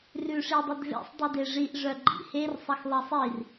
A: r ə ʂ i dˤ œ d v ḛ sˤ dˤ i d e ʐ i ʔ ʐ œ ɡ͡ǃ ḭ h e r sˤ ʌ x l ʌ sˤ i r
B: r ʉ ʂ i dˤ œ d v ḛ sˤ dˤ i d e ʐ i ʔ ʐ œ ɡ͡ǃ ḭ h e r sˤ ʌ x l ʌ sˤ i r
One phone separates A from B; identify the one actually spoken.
B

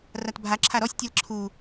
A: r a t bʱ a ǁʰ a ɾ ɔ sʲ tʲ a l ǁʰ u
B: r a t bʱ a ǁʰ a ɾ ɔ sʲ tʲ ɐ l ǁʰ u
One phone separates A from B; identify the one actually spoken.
A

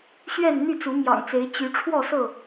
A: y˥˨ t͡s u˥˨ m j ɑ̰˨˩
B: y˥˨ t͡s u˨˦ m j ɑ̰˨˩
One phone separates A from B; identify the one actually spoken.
B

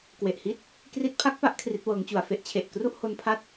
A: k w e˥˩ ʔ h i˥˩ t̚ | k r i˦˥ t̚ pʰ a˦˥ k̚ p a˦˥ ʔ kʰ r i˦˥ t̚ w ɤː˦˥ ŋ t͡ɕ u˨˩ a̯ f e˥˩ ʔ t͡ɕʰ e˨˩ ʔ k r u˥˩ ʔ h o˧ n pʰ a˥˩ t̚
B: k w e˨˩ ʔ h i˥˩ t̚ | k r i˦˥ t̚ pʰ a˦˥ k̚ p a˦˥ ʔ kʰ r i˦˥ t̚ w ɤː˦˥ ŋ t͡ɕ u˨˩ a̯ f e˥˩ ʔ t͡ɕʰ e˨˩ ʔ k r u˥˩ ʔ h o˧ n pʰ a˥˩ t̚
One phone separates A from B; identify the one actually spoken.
B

